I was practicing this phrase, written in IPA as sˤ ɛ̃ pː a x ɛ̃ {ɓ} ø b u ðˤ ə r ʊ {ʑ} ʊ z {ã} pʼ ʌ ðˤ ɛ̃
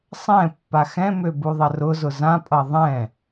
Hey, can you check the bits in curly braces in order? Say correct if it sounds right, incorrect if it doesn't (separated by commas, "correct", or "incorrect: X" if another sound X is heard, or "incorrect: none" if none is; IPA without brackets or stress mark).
incorrect: m, incorrect: z, correct